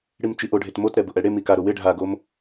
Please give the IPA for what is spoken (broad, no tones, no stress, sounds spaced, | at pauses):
ɽ i m t͡ʃ i ʔ o ɖʱ e t m o t ɾ ɛ b ʊ ʔ ɛ ɽ e m i k a ɾ o w ɪ ɖʱ a ɡ o m